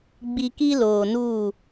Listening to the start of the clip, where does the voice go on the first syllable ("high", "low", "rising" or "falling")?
high